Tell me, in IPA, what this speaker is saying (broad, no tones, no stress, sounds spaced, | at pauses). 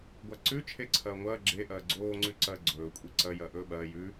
ɡʷ a ǀ ʉ t͡ʃʰ e ǀʰ ɐː ŋʷ ɐː ɡ͡ǁ e ʔ ɐː ɡ͡ǀ oː ŋ͡ǀ ʉ ǀ ɐː ɡ͡ǀ ɵː kʷʼ i ǀ ɐ j ɐː ʔ ɵː ɓ ɐː j ʉ